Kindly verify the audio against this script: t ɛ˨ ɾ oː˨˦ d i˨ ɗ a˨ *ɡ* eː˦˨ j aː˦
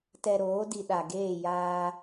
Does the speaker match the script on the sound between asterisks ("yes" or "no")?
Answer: yes